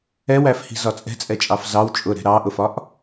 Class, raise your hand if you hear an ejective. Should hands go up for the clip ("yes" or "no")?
yes